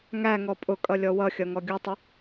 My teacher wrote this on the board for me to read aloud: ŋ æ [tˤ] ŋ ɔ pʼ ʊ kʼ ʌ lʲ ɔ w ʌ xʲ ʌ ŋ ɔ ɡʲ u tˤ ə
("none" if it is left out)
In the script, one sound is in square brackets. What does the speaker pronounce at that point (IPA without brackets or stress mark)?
none